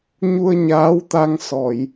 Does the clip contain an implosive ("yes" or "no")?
no